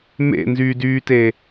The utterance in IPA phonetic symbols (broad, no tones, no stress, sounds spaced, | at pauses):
m ḛ n z yː d yː t e